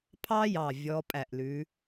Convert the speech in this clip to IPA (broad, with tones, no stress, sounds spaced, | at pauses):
pʰ ɑ˦ j ɑ˧˩ vʲ ɔ˨˦ pʼ æ˧˩ ʔ l ʉ˨˦